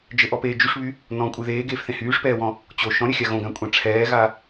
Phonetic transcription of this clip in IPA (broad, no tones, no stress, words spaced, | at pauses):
d͡ʒɘʔɔpeː d͡ʒyʂβy | nɔ̃kʷʼɨ ðeːɡeːfθẽ hyːʂpɛːwɔ̃ | t͡ɕo ʃɔ̃ɾʲɘxʲa ɣõɡãkʷʼã ʈ͡ʂʰɛːɣa